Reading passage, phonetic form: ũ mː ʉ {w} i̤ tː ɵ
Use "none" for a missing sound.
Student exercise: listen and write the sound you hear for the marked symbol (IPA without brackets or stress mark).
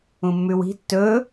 w